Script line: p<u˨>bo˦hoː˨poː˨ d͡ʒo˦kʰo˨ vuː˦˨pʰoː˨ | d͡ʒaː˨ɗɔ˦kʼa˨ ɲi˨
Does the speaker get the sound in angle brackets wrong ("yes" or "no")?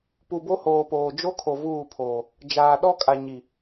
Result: no